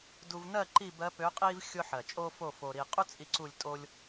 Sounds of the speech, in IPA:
du˧vnɜ˥˧ ǃi˥˧bɜ˧˥pø˧˥qʼi˥v xʲʊ˥ ħɜ˨˩t͡ʃʼo˥fo˥˧ fo˧ɾi˧ qʼu˥t͡sʼi˧ ǀu˥˧lʲtʼo˥lʲ

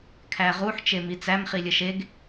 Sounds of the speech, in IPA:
kʰæʁuħ t͡ʃemit͡sæm χilʲəʃeɡ

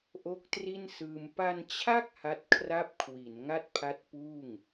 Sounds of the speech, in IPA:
ʔo˦˥k̚tri˥˩nsɯː˧m pa˧nt͡ɕʰa˥˩k̚ ha˦˥t̚kʰra˥˩p̚ kʰwi˩˦n ŋa˥˩t̚pʰa˦˥t̚puː˥˩ŋ

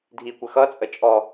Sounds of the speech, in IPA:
dʱikʷə xʌt͡sʼə t͡ʃʼɔ

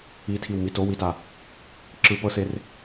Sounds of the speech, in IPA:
itʰiw mitowita | ǁɯ pɤser

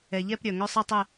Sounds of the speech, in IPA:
ɛ˩ʎɛ˦˨p ɾʲœ˩ ŋœ˦˨sˤi˦˨tˤɛ˦˨

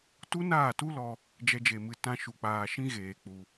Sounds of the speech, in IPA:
tu˦naː˦˨tu˦lɔ˧ | d͡ʒɛ˦d͡ʒe˧mɨ˧ tã˦ʃu˧k͡paː˧ ʃĩ˦ɣeː˨ k͡pu˧

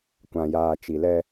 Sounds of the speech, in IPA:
kʷã˨jaː˨t͡ʃi˨lɛ˦

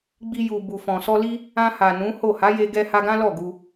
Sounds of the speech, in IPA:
ɡ͡bi˧ ju˨ bu˨fɔ̃˨ sɔ˧li˦ | ã˧ha˨ nũ˨˦ho˦˨ ha˨˦je˧ɡɛ˧ha˧ ɡã˦lɔ˦˨ ɡu˧

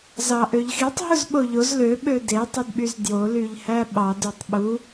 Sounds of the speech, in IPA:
zɑʔøʎxitˤ ɦuzɓoʎoz lø ɓøde tˤɯdɓyzdjo lyʎhæɓɑd ytˤɓu

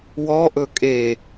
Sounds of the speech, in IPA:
wɔ ʔɵkʼe

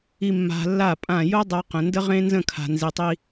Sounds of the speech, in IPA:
i˨mːa̤˨ lːa˦˨pʼã˦˨ jo˦ dˤa˦qə̃˨ ndə˦ʁẽ˦nzə̃˦˨ kʰa̤˨nzi˨tˤi˦

